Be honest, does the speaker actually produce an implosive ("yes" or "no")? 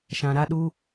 yes